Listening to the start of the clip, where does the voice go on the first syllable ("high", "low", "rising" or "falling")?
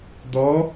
rising